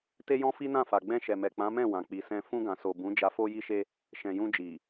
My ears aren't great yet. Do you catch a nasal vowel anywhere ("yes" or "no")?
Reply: yes